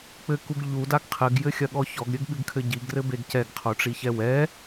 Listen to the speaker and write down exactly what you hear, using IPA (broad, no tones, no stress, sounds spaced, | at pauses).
k͡p ɘ k u ɡ ʎ u d a ɡ qʰ ɘ ɡ j ɘ xʲ ɐ ɠ ɔ ç ɔ ɡ ɾʲ ɘ ɡ ɠ ɨ ɡ kʰ ɘ ɟ i ɡ r ɘ b e ɡ c ɛ ɡ qʰ o ʈ͡ʂ i ç ɛ w ɛ